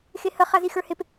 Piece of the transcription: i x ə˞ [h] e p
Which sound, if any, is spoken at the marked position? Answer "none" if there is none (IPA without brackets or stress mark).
h